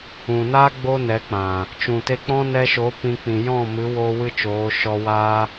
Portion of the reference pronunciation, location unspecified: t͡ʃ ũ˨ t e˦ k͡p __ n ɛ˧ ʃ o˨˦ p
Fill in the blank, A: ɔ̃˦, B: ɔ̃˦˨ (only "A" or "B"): A